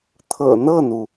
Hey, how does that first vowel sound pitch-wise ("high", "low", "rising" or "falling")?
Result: low